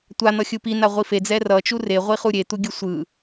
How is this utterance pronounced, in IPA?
tʷ a n̪ ʌ xʲ ɯ p i n a ʁʷ i f e d͡z ɛ r ʌ t͡ʃ u r e ʁʷ i χ u ɾʲ e t̪ u ɡʲ ɯ sʷ ɯ

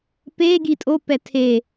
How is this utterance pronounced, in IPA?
p e ɡ i tʼ o p ɛ tʰ e

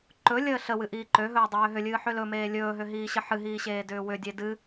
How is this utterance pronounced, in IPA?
ǃ ɵ lʲ əː ɬ ə w ɨ ʔ iː ǃ ø ɦ ɵː dˤ ɵ w ø ɦ ʏ lʲ ɨː ħ ʏ l ɵ m eː lʲ ɵː ɦ ʏ ɦ iː ɕ ə ħ ɨ ɦ iː ɕ eː d ʏː w ʏ dʲ e d ɨ

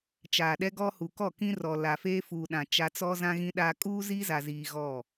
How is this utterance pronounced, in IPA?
t͡ʃ aː˨ ɗ ɛ˦ ɡ ɔ˦ h u˨ k ɔ˦˨ k ĩ˦ r ɔ˨ l a˨ f eː˦ f uː˨ ɗ ã˨ t͡ʃ a˦ t͡s ɔ˦ z ã˦ ɣ ĩ˦ ɗ aː˦ kʼ uː˦ z iː˦ z a˨ z iː˨ ɣ ɔ˦˨

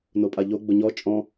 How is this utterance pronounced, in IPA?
n o pʼ a ʎ o ɡ͡b ʊ ɲ ɔ t͡ʃʼ ɔ̃

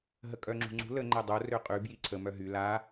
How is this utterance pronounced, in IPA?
ɦ ə kʼ œ ŋ͡ǁ ṳ ŋ͡ǀ ṳ l ə ŋ͡ǃ ɛ dˤ o r ø qʼ y b j i ǀʰ ə m œ ɦ y l a

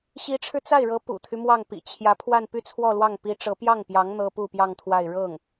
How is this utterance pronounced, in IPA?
ɕ i˧˥ ʈ͡ʂʰ ɻ̩˧ t͡s a˥˩ ɪ̯ ɻ ɤ˧˥ p ṵ˨˩ t̪ʰ y˦ m w ɑ˥˩ ŋ p ḭ˨˩ t͡ɕʰ j ä˧˥ pʰ w a˥˧ n p y˥˧ t͡sʰ w ɔ˥˧ l w ɑ˥˩ ŋ p i˧˥ ʈ͡ʂ ɤ˧˥ p j ɑ˥˩ ŋ p j ɑ˧˥ ŋ n̪ ɤ˥ p u˥˧ p j ɑ˥˧ ŋ t̪ʰ w a˥˧ ɪ̯ ɻ ɤ˥˩ ŋ

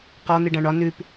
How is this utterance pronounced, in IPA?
q ɒ n̪ i ɖ ã ɳ ɒ n ʉ p

